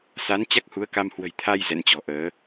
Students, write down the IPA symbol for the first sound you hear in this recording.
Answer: s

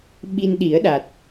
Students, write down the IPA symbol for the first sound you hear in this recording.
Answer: ɓ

